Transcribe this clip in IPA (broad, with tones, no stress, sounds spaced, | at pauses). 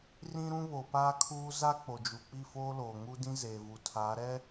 r ĩ˦ ɾ ũ˦ β o˨ p aː˦ kʰ uː˦ z a˦ k͡p o˨ d͡ʒ u˨ k͡p i˦˨ f oː˦ l oː˨ ŋ u˦ d ĩ˦ z eː˨ v u˨ tʰ a˨˦ ɾ ɛ˦